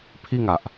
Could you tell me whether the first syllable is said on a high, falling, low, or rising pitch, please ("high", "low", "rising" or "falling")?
falling